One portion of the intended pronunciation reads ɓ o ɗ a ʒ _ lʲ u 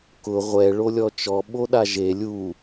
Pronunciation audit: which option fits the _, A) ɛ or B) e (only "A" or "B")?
B